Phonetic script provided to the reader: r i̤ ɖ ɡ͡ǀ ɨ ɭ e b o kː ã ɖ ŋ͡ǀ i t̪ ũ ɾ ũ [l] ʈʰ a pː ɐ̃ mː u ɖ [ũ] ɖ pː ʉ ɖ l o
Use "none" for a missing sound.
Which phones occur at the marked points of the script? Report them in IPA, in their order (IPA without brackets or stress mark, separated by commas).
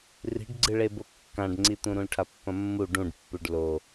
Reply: l, ũ